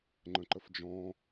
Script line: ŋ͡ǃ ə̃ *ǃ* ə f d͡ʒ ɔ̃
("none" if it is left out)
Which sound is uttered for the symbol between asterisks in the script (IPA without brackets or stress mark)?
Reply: ǃ